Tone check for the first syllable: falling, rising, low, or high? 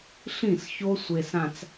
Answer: falling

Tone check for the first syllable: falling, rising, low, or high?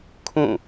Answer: falling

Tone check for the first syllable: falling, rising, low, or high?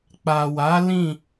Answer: low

